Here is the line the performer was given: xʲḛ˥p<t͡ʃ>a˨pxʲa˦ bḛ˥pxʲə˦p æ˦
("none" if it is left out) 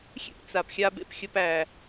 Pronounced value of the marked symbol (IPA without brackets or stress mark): t͡s